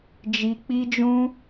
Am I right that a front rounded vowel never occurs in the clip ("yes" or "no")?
yes